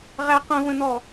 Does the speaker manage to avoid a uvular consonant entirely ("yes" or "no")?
no